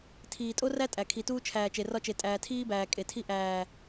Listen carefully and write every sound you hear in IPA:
tʰ iː˨ tʼ o˦ r æ˦ tʼ æ˨ kʰ i˨ t uː˦ t͡ʃʰ æː˨ t͡ʃ e˨ r ɒ˦ t͡ʃ e˨ tʼ æː˨ tʰ iː˦ b æː˨ kʼ e˨ tʰ i˦ ʔ æː˨

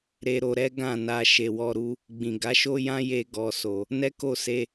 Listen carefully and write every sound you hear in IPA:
ɾ e˧ ɾ o˧ ɾ ɛ˦ ɡ ã˦˨ n a˧ ʃ e˨ w ɔ˧ ɾ u˧ | ɡ͡b ĩ˨ ɡ a˨˦ ʃ o˦ j ã˦ j e˧ ɡ ɔ˨ s o˨ | n ɛ˦ k o˦˨ s e˧

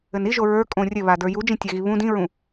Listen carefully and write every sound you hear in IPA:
ɘ n i ʒ o ɹ ə˞ kʼ õ rʲ ɘ β a d ə˞ j u d͡ʒ ĩ tʲ a ɣ i β ũ d ĩ ɹ ũ

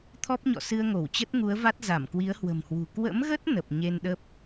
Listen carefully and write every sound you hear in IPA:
t̪ʰ ɔ˦˥ p̚ ɲ ɔ̰˧˨ s ɨ˧ ə̯ ŋ o˧˩ w t͡ɕ ə˦˥ t̚ ŋ u˨˦ ə̯ v a˦˥ t̚ z a˧˩ m k w i˨˦ ə̯ h w ə̤˨˩ m h w ṳ˨˩ k w ə̰˧˥ m ɣ ə˦˥ t̚ n ə˨˩ p̚ ɲ e˧ n ɗ ə˦˥ p̚

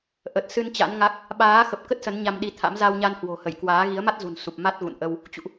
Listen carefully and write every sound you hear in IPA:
ʔ ə˨˩ t̚ s ɨ˧ n t͡ɕ a̰˧˥ n ŋ a˦˥ k̚ | ɓ aː˨˦ x ə˨˩ p̚ k ə˦˥ t̚ s ə˨˦ n ɲ a˧ m ɗ i˧ t̪ʰ a̰˧˥ m z a˧ w ɲ a˧ n h w o̤˨˩ h ə˧˩ j k w aː˨˦ ɣ i˨˦ ə̯ m a˦˥ t̚ z ṳ˨˩ n s u˨˩ p̚ m a˦˥ t̚ ɣ ṵ˧˨ n ʔ ə˧ w | t͡ɕ ṵ˧˨ ʔ

